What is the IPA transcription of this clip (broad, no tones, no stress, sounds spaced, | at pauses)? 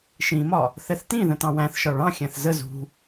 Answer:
ʃ ĩ m ɒ | θ ɛ θ t ĩ ð ə̃ t ɑ̃ w æ̃ θ ʃ ɒ ɭ ɑ̃ xʲ æ̃ θ z ə z ṳ